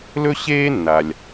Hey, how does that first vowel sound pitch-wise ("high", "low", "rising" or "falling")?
high